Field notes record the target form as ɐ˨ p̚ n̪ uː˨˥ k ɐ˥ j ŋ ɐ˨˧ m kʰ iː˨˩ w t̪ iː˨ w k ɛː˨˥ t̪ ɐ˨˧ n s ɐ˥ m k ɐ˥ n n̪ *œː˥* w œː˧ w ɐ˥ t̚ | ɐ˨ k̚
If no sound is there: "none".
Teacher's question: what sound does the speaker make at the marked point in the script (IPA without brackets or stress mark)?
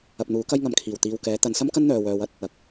œː˨